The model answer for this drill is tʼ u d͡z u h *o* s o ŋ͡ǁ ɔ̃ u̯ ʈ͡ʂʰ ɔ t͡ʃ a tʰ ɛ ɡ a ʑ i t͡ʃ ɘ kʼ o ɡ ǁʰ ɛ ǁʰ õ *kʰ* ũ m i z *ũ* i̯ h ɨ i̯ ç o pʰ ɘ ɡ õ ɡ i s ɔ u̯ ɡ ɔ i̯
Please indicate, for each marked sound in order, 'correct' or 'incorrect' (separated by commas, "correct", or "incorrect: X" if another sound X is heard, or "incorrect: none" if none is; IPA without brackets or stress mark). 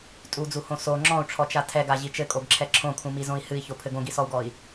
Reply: incorrect: õ, correct, incorrect: õ